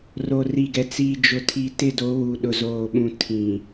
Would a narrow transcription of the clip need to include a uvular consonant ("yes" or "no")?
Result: no